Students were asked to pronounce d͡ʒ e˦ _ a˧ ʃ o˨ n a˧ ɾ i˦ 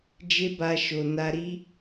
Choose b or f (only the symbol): b